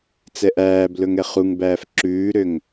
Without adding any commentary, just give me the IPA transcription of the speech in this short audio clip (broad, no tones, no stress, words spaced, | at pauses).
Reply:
t͡sɛʔæːblɵŋ ɛχuŋbæːf ǁʉːɾøŋ